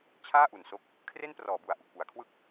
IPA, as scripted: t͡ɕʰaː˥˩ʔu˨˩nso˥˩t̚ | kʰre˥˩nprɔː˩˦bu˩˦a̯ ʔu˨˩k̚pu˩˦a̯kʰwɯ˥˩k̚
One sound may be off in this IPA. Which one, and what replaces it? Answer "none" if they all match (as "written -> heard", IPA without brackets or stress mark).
t̚ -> k̚